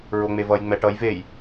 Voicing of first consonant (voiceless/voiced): voiced